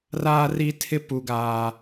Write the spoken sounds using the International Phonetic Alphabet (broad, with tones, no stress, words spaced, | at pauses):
raː˦ri˦ tʰɪ˦pu˨ɡaː˨